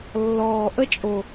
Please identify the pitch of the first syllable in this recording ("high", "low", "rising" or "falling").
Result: low